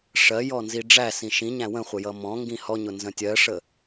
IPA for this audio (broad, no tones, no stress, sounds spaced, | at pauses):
ʂ ɜ j ɔ n z i ɖ͡ʐ æ s ĩ ʃ ĩ ɲ æ̃ w ə̃ χʷ ə j ʌ m ɔ̃ ŋ ɡ ĩ h ɔ ɲ ʊ n z ə̃ tʲ ɜ ʂ ə